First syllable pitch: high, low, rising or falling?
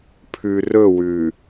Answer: low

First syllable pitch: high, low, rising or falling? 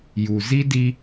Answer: low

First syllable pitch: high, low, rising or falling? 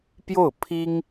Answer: falling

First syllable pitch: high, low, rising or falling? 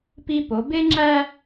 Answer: high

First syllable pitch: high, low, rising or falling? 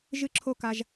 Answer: high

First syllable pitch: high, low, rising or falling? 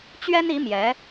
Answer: high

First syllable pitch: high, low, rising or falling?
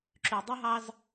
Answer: low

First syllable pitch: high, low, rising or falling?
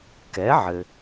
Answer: rising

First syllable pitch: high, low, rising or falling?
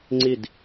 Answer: falling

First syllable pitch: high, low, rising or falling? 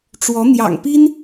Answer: rising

